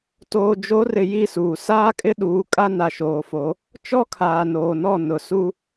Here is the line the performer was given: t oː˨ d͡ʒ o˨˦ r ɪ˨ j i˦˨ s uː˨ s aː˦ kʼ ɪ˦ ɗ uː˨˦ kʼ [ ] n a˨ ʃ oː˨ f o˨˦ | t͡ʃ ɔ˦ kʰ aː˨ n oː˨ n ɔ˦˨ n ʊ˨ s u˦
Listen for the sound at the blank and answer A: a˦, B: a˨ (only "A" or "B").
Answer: A